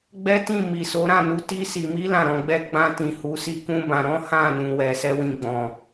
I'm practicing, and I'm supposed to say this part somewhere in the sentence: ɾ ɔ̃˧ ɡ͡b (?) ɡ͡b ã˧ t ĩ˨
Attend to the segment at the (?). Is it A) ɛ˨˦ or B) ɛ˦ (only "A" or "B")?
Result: B